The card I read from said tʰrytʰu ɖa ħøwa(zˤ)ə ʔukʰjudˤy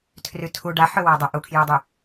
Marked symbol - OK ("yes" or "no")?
no